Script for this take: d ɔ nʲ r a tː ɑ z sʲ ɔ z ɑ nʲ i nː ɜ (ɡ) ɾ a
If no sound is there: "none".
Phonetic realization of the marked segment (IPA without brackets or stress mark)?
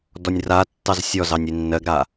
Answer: ɡ